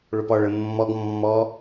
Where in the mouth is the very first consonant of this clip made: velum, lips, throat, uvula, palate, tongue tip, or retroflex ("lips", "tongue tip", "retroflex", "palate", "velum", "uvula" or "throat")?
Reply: retroflex